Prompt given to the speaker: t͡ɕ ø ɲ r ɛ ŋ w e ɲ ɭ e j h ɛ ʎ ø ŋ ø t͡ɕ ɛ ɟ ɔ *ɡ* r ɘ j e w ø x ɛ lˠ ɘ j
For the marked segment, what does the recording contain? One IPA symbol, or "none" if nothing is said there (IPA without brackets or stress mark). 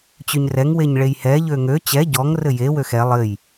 ŋ